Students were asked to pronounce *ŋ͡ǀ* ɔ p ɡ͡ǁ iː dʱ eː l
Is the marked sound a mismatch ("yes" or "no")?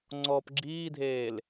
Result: no